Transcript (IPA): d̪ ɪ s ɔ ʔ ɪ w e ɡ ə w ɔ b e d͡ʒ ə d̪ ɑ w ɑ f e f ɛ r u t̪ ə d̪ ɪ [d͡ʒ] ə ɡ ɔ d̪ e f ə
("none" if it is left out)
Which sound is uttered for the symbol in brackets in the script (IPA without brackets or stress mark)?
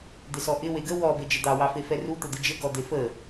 d͡ʒ